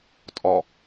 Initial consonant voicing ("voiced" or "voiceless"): voiceless